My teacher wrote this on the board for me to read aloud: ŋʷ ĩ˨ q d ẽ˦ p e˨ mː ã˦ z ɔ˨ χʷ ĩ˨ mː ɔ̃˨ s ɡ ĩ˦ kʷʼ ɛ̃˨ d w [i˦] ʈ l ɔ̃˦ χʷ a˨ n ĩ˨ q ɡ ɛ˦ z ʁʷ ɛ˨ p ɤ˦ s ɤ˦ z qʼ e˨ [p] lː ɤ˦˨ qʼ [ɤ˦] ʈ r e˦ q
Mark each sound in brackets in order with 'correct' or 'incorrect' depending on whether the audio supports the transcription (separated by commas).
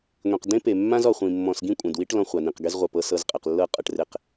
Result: correct, incorrect, correct